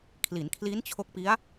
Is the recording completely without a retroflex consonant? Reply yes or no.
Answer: yes